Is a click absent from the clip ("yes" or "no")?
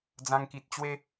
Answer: yes